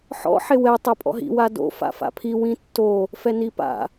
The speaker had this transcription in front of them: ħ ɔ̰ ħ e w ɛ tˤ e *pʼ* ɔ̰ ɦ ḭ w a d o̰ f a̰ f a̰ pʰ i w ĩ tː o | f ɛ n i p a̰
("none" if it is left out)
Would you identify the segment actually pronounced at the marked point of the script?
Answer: pʼ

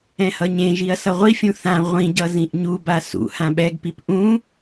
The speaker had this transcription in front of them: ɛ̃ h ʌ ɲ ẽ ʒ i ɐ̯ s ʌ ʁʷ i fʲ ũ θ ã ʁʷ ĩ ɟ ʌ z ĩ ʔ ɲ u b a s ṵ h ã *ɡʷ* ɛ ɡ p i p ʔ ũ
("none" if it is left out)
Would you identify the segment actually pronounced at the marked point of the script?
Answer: ɓ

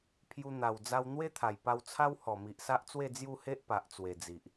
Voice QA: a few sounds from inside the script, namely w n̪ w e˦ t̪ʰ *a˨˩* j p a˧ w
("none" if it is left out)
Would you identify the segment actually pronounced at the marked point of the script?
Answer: a˨˩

